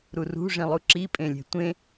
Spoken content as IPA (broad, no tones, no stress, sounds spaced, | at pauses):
ɾ u r ṳ ʐ ĩ lˠ u ǁ i pʼ ẽ lʲ e̤ tʷ ẽ